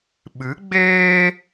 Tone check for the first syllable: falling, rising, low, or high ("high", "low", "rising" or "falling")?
rising